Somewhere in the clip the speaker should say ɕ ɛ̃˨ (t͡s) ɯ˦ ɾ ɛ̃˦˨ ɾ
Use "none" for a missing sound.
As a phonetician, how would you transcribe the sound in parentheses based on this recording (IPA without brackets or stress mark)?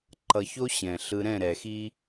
ɬ